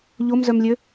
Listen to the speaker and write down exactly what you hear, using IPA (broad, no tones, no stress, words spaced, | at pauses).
ʎomzœmlʲø